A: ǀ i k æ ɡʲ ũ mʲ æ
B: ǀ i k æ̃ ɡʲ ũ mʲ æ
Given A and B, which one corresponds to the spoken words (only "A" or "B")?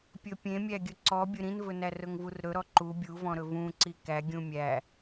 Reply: A